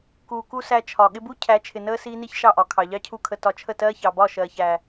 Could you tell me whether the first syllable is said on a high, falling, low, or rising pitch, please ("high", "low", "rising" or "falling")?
low